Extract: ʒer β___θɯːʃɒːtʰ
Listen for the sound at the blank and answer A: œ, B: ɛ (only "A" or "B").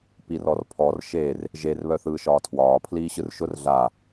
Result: A